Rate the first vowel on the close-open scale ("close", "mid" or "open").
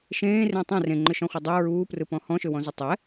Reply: mid